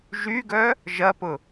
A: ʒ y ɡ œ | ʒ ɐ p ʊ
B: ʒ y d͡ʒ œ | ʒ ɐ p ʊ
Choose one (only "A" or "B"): A